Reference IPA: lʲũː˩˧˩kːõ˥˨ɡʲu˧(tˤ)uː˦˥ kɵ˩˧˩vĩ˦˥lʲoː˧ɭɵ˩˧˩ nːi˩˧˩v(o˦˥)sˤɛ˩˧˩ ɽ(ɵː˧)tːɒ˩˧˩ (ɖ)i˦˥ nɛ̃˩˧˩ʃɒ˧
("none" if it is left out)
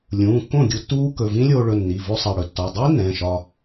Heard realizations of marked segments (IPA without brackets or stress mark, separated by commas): tː, o˦˥, ɵ˧, dˤ